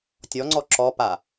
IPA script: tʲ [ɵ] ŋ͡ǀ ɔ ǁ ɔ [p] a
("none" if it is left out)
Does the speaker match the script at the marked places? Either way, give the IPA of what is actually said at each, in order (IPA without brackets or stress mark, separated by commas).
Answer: ɔ, p